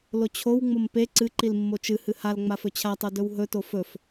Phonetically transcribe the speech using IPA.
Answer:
lot͡ɕʰow ŋ͡mompe ǀɨǃil mːot͡ʃɨ hɨhal ŋ͡mafɵt͡ɕʰatˤo dɵwɦɵto fɵf

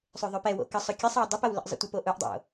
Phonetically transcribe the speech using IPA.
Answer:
sˤøðˤøpɛwo̰ kəsˤʊ kʲɐsˤɛw dˤɐpɐw lə̰ʔzˤə̰tʷəpo ʔʊʔdˤo̰

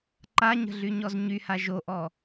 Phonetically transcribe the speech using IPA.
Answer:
ǃaɲə̤ɮyɲɔz ɲyha ʒoʔɔ

